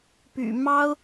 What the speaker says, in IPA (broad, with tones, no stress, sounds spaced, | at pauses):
p y̰˨˩ m ɑ˥ ʊ̯